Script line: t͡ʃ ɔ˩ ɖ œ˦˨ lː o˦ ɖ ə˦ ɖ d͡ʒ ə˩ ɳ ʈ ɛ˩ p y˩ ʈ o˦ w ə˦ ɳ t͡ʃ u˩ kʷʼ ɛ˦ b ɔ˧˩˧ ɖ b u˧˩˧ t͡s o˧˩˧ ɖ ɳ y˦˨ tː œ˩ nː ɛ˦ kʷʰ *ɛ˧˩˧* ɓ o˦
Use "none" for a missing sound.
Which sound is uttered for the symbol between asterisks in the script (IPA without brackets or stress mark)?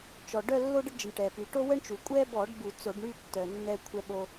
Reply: ɛ˦